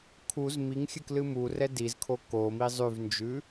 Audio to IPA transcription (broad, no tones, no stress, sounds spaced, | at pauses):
kʰ u z m i ŋ xʲ ɨ k l ɨ m u r ɛ d i z kʰ o k o m i zˤ ʉ v n d͡ʒ ʉ